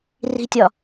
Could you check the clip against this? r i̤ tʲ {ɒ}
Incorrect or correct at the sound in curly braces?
correct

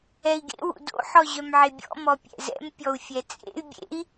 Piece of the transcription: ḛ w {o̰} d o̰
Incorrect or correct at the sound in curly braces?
incorrect: ṵ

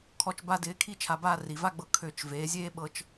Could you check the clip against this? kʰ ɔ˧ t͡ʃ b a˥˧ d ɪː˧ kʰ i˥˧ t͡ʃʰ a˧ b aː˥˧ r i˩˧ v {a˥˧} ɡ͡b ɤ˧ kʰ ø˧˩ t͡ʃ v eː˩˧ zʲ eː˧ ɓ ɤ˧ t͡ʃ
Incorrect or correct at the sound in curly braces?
correct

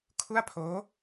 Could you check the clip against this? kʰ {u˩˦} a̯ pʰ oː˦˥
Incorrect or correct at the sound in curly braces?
incorrect: u˥˩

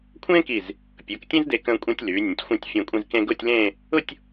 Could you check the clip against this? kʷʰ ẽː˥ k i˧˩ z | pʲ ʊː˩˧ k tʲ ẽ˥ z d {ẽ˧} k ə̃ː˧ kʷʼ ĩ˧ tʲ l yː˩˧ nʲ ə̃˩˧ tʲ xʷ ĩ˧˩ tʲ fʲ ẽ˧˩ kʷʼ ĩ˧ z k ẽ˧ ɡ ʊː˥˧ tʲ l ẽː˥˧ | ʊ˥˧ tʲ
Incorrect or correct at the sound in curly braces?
incorrect: e˧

